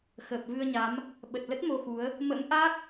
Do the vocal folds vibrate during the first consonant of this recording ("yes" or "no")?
no